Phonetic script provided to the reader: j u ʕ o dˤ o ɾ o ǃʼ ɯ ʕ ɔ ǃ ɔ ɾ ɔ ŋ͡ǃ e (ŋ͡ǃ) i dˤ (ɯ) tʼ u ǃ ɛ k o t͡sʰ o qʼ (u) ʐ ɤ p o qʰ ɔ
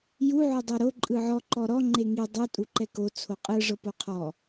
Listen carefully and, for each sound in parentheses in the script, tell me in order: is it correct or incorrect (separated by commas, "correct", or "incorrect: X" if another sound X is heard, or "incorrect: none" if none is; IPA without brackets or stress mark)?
incorrect: ŋ, correct, incorrect: ɯ